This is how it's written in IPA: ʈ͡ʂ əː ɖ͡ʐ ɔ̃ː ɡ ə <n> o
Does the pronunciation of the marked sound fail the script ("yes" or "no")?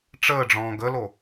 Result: yes